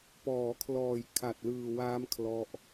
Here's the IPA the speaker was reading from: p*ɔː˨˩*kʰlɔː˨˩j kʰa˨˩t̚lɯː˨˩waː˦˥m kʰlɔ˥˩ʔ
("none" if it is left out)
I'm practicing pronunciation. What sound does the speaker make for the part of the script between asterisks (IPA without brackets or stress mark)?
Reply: ɔː˩˦